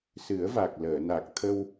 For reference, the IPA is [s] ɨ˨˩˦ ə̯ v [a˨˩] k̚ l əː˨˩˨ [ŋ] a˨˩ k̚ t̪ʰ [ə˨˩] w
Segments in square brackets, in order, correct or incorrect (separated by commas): correct, correct, incorrect, incorrect